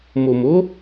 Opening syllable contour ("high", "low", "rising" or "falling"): low